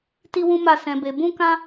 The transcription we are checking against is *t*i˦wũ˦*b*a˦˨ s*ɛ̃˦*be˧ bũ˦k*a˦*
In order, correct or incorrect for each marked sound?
correct, incorrect: m, incorrect: ɛ̃˧, incorrect: ã˦

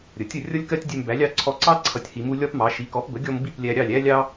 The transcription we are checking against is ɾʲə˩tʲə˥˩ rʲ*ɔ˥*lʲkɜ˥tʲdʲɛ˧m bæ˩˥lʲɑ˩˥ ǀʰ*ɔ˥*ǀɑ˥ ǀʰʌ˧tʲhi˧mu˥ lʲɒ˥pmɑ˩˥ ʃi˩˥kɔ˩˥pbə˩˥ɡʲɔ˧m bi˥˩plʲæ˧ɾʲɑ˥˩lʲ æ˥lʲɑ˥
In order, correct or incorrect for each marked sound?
incorrect: ʌ˥, incorrect: ɔ˧

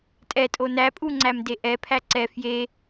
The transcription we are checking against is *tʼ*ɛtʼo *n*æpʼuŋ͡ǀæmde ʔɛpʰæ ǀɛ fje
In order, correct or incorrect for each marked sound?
correct, correct

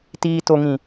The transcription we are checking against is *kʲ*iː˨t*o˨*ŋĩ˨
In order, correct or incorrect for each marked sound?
incorrect: t, correct

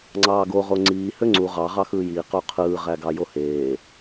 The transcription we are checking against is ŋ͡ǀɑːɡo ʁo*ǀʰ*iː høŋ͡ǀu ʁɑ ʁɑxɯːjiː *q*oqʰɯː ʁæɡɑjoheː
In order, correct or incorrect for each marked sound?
incorrect: ŋ͡ǀ, correct

